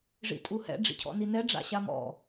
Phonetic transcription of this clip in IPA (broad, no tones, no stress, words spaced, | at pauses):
ʐḭtʼuhɛ̰ ɖ͡ʐḭcʰɔ̰ninɛ ɖ͡ʐa̰ɕamɔ̰